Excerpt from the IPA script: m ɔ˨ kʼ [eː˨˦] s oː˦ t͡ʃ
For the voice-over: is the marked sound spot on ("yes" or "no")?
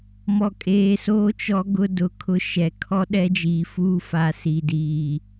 no